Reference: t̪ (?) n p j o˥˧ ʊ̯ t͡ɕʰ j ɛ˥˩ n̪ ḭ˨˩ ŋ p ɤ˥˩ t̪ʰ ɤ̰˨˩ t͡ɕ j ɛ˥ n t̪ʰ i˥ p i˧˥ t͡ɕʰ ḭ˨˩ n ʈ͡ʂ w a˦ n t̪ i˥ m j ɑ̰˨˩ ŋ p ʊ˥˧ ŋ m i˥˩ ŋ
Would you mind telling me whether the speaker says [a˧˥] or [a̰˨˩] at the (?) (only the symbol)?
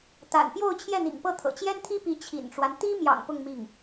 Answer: a̰˨˩